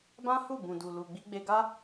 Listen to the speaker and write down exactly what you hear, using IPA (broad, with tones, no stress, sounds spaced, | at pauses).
b ã˦ h u˦˨ b ũ˨ d u˨ l u˨ ɡ͡b i˧ ɡ͡b e˧ ɡ a˦